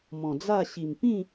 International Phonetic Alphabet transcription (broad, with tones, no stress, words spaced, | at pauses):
mɔ̃˨˩d͡za˥˧ ɕi˨˩m pĩ˥˧